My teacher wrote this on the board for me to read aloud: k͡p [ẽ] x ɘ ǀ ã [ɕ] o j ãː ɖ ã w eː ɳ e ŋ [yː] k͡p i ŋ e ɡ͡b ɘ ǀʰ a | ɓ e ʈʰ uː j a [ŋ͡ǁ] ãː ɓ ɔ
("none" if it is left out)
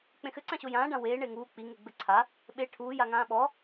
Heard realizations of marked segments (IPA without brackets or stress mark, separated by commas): ẽ, ɕ, uː, ŋ